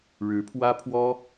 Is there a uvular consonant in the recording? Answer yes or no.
no